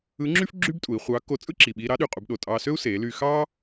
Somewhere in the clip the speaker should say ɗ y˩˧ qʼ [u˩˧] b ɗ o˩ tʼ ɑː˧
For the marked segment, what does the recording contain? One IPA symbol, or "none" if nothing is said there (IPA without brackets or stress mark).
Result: u˩˧